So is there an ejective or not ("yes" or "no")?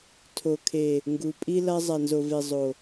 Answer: yes